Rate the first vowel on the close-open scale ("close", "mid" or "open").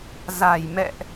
open